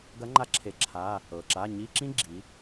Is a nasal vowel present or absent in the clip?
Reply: present